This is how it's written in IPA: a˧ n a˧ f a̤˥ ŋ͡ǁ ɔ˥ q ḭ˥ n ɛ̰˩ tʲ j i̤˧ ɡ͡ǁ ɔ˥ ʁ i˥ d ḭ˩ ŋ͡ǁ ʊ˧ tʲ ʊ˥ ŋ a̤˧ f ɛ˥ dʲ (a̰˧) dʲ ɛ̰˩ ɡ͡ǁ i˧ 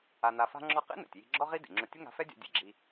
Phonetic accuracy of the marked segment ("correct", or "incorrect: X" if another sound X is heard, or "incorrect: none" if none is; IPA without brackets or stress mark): correct